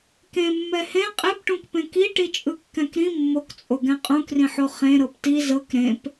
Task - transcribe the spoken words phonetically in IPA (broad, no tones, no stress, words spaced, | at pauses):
kẽ mːɛhẽ qʼepʈũkpẽ ki ʈit͡ʃʼɯkːɛ̃kɾĩ mːokt͡sʼoɡɛ̃ qʼũkrĩħo χẽ ɾɤpti zɤk ɾẽp